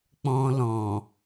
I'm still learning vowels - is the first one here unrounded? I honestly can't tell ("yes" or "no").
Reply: no